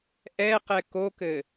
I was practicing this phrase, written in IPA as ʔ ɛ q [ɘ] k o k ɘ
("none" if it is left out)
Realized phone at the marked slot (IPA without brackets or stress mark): ɛ